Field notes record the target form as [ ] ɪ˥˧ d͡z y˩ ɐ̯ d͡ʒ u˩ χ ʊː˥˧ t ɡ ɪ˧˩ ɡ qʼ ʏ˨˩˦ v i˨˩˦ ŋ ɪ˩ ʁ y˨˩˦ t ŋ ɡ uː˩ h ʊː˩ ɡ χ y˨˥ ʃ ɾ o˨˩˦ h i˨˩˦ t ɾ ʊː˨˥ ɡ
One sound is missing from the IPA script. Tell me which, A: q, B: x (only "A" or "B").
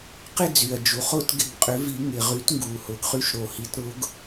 A